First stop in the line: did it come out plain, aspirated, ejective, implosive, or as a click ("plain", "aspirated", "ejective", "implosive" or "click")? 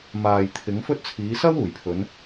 aspirated